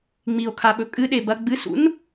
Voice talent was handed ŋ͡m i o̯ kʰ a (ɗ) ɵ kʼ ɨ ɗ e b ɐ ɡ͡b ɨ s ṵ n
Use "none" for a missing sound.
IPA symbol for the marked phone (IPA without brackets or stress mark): ɓ